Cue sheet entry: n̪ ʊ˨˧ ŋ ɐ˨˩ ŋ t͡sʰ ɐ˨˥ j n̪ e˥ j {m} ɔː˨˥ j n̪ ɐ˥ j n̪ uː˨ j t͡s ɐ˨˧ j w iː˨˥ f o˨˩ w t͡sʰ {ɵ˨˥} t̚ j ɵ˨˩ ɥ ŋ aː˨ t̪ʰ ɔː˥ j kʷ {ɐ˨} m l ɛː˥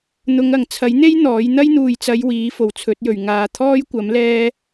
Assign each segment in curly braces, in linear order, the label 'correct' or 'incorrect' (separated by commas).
incorrect, correct, incorrect